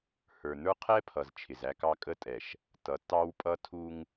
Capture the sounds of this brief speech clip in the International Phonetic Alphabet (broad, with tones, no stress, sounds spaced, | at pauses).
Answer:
h ə˞˨ n ə˞˦ qʰ ɛ˦ pʰ ʌ˨ z t͡ʃʰ ɪ˨ z æ˦ k ɑ˦ kʼ ə˦ tʼ ɛ˨ ʃ | t ʌ˨ tː ɑ˦ w pʼ ʌ˦ tʰ u˦ ŋ